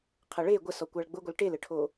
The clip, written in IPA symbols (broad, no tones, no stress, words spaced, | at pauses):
qʰɐɭe ɡʷəsɔ kʷaɭɡ͡bʊɡʷʌl ʈelɘʈʰo